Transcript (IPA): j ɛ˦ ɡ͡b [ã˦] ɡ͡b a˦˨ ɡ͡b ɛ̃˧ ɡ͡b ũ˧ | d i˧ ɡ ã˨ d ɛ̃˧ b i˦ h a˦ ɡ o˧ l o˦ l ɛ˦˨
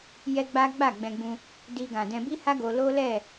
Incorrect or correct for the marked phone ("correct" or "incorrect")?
incorrect